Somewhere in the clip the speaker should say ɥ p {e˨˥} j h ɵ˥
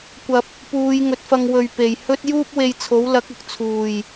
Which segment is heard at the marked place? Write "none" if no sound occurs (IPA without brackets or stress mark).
e˨